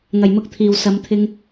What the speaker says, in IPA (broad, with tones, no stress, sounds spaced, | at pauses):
ŋ ɐ˨˩ j m ʊ˧ k̚ t̪ʰ iː˨˩ w s ɐ˨˧ m t̪ʰ ɪ˧ ŋ